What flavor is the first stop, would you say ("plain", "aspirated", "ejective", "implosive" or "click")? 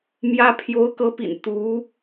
aspirated